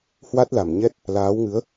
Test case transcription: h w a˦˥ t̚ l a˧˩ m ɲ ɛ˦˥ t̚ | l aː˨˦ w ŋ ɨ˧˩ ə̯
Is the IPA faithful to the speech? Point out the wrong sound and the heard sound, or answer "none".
ɨ˧˩ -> ɨ˨˦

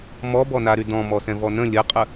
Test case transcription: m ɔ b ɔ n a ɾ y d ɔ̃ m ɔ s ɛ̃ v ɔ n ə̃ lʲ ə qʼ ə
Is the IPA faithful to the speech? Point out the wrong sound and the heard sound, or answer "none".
none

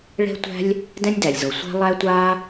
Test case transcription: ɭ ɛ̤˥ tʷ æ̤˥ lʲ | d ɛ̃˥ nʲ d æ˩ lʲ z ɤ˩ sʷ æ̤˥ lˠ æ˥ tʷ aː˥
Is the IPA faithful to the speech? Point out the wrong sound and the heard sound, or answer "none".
none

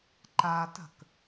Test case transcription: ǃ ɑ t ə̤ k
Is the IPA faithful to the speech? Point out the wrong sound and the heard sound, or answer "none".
ɑ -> a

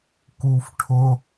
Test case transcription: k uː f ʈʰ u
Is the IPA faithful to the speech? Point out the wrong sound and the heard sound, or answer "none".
u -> ʊ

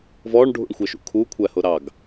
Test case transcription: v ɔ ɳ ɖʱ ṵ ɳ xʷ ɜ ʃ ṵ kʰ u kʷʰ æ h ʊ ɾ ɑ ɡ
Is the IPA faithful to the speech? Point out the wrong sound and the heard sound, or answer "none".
none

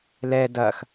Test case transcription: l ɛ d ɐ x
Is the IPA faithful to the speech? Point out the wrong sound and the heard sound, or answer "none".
none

